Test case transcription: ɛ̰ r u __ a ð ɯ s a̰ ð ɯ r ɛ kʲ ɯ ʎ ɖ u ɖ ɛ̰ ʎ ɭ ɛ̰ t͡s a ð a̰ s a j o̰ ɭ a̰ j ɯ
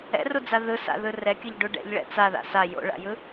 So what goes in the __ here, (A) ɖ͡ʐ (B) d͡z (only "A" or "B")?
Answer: B